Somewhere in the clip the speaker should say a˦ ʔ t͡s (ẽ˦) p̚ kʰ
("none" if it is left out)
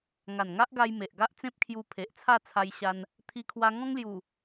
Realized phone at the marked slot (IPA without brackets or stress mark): ẽ˦